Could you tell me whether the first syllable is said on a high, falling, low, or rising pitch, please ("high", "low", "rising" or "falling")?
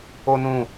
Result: high